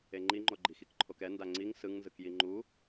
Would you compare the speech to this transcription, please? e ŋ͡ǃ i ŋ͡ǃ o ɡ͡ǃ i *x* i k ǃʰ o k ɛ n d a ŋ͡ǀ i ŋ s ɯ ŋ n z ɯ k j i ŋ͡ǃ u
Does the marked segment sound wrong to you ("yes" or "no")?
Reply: no